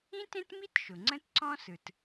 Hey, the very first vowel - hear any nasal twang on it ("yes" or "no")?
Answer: yes